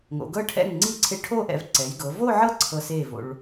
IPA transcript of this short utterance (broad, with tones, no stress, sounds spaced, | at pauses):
ŋ o̰˩˧ ɡ ɤ˥˧ ʈʰ ɛ̰˥˩ ŋ ŋ͡ǀ i˥˩ ǀʰ e˧ ʈʰ o˥˧ ʔ ɛ̰˧ v ǀ ɛ˩˧ j ɡ ɤ˩˧ v o˥˧ ʕ ɤ˥˩ ǀʰ ɤ˧ s e˥˩ v o̰˧ ɭ